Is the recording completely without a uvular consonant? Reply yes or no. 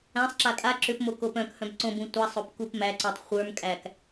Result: no